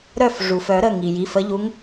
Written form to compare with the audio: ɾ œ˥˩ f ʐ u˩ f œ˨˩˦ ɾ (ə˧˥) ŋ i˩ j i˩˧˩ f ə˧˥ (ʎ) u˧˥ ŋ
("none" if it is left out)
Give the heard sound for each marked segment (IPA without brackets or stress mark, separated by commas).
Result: ə˩˧˩, ʎ